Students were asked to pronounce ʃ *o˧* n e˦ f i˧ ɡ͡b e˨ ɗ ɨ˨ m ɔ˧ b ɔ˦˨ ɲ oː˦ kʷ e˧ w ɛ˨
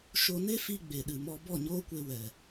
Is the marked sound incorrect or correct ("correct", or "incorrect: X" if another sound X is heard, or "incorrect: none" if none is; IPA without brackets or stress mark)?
correct